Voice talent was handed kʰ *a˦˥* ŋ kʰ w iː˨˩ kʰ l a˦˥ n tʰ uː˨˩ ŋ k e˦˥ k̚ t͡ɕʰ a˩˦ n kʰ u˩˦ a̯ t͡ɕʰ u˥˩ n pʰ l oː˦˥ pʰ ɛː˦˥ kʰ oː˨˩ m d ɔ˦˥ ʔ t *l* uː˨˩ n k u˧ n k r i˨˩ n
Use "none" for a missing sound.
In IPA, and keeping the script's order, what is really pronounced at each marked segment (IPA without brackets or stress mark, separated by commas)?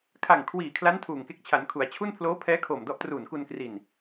a˨˩, r